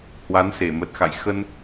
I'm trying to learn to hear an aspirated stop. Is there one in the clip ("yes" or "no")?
no